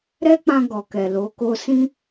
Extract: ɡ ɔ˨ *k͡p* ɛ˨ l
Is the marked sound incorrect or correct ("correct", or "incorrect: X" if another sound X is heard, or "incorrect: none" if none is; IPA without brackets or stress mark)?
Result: incorrect: k